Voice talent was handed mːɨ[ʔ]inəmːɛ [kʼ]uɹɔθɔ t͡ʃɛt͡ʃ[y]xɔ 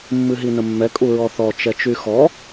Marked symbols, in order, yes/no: no, yes, yes

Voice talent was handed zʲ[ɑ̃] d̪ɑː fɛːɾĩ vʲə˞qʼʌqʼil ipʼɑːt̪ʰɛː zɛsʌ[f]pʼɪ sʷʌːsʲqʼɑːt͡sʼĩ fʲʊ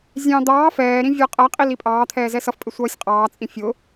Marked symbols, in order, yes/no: yes, yes

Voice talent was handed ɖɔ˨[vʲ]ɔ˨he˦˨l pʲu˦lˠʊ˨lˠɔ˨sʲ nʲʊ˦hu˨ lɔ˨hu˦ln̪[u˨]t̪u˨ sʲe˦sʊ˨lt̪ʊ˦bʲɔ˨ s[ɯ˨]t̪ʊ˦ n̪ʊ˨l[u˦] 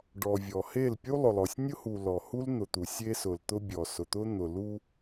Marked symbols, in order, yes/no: yes, no, no, yes

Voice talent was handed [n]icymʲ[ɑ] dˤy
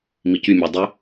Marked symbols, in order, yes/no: no, yes

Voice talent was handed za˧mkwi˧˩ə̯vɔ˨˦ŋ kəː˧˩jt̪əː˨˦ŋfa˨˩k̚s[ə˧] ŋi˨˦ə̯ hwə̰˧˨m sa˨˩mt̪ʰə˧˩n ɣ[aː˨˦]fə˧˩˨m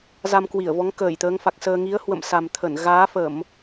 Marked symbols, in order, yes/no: no, yes

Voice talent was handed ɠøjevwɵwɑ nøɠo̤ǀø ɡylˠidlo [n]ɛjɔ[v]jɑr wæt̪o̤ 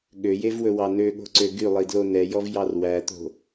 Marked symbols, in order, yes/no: yes, yes

